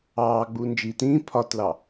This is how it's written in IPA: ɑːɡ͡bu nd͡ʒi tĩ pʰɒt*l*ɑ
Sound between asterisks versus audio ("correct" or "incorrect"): correct